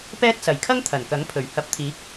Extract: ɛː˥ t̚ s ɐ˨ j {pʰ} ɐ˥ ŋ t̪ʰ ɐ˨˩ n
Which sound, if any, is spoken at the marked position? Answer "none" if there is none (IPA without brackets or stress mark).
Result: kʰ